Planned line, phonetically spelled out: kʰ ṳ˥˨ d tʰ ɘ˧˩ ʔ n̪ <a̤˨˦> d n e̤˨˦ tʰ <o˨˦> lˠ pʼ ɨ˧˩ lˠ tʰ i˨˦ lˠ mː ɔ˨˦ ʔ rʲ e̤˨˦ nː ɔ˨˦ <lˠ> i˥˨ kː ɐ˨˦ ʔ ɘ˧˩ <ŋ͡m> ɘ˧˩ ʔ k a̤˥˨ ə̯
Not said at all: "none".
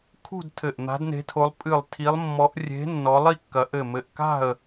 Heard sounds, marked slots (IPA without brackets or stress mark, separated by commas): a̤˨˦, o˨˦, lˠ, m